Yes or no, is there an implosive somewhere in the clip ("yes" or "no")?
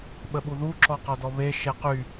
yes